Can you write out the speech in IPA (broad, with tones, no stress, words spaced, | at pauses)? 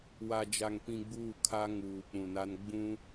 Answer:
wa˨d͡ʒa˨ŋ pĩ˨ ɡ͡buː˦˨kʰa˦ŋuː˨ k͡pũ˨na˦n ɡ͡bũ˦